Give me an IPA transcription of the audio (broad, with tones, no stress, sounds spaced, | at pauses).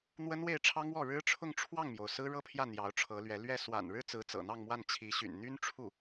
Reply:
n̪ w ə˥ n w e˥˩ ɪ̯ ʈ͡ʂʰ ɑ˥ ŋ w ɔ˥˩ ɻ ɻ̩˥ ʈ͡ʂʰ ʊ˥˧ ŋ ʈ͡ʂʰ w ɑ˥˩ ŋ m j o˩ ʊ̯ s ɹ̩˥ ɻ ɤ˥ pʰ j ä˥˩ n̪ j ɑ˧˥ ʊ̯ ʈ͡ʂʰ ɤ˧˥ l ɥ ɛ˧˥ l ɥ ɛ˥˩ s w a̰˨˩ n ɻ ɻ̩˥ t͡s ɹ̩˧˥ t͡s ɤ̰˨˩ n̪ ɑ˥˧ ŋ m w a˥˩ n t͡ɕʰ i˧˥ ɕ y̰˨˩ n n̪ y˥ n ʈ͡ʂʰ u˥˩